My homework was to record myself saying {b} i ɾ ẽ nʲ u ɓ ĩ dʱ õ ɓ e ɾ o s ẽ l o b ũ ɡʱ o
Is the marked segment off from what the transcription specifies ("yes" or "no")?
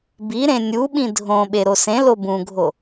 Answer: no